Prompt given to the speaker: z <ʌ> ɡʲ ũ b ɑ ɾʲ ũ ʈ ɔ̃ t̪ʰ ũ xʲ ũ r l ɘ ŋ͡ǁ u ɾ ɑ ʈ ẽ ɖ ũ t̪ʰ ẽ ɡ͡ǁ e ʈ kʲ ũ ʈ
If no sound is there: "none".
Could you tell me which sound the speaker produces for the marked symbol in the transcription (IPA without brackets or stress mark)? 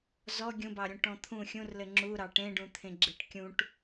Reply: ɔ